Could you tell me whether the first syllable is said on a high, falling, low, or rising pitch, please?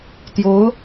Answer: rising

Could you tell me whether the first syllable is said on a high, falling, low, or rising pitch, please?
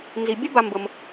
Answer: low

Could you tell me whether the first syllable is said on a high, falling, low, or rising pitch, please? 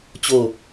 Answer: falling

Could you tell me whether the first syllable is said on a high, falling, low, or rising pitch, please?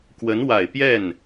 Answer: rising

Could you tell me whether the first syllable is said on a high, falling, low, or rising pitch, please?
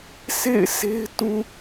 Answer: falling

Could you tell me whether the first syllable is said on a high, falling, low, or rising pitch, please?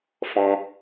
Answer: high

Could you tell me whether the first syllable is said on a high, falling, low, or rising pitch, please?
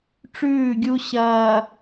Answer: falling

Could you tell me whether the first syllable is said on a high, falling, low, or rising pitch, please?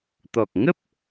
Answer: low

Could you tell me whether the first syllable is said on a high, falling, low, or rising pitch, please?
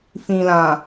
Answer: low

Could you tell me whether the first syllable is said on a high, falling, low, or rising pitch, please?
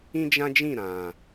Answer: high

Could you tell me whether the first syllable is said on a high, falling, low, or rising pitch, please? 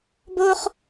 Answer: high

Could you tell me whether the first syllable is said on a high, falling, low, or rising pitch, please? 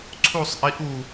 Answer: falling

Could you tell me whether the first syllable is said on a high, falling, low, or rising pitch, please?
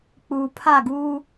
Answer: low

